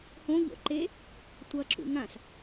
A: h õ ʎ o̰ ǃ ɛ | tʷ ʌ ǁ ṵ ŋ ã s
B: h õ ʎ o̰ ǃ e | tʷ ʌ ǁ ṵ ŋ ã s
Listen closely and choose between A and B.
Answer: B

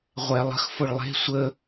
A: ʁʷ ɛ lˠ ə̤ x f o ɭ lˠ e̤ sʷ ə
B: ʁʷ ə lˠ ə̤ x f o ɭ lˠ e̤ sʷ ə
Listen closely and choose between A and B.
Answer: A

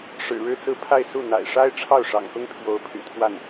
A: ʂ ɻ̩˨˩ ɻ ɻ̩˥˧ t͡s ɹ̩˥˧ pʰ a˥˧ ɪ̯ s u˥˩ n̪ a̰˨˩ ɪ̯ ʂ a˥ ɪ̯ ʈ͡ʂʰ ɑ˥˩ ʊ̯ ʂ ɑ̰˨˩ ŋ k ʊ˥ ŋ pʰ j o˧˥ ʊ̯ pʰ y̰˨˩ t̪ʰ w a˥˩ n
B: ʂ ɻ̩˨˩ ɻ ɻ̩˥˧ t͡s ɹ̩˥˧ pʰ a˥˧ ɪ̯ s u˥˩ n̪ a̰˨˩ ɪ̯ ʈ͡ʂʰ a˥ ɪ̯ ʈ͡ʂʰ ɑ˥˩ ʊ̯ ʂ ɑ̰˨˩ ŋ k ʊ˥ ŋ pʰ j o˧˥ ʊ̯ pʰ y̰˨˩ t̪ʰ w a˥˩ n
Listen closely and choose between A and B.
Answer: A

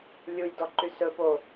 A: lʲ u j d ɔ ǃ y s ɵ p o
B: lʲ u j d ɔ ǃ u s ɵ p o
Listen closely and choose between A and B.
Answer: A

